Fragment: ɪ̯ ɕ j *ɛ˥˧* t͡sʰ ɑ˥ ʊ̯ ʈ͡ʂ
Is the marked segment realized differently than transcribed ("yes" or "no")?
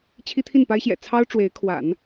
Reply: yes